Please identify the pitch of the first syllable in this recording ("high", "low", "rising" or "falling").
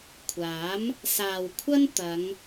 rising